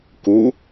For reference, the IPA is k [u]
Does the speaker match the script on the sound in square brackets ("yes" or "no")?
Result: yes